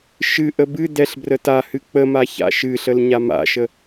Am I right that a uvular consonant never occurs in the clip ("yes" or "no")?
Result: yes